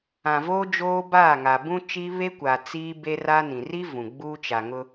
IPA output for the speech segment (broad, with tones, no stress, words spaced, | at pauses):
ã˨ voː˦d͡ʒoː˦baː˦˨ŋa˨ bũ˦t͡ʃi˦ βe˦kʷa˨ t͡siː˦ be˦ra˦nĩ˨ ri˦ vũ˨ ɡ͡buː˦t͡ʃa˨ŋʊ˦